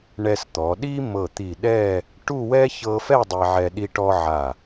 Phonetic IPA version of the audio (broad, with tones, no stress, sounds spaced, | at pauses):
ɳ ɛ˧ s t̪ ɔ˩˧ ɗ i˥ m ɤ˧˩ t̪ i˧˩ ɗ ɛ˥˧ | ʈ u˥˧ w ɛ˥ ç ɤ˥ f ɛ˥˧ dˤ e˧ ʕ ɛ˧ ɗ i˧ ʈ ɔ˧ ʕ a˧˩